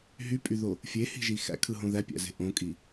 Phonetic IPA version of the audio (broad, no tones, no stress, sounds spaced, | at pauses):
ɦ y pʼ y ð o | fʲ e h i̤ ʒ i x æ̰ kʰ ɯ ɦ õ ð æ pʲ æ̰ z e̤ ʔ õ kʼ i